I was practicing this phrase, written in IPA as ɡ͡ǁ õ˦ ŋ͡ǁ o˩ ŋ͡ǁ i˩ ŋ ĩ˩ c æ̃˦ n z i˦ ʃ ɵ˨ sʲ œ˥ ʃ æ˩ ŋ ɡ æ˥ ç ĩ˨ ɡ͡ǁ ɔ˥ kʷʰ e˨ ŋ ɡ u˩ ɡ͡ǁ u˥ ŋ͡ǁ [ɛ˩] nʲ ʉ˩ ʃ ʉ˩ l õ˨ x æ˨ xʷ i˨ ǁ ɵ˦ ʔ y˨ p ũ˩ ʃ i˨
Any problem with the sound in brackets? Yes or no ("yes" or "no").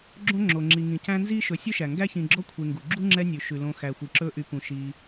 yes